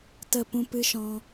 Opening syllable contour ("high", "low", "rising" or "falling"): falling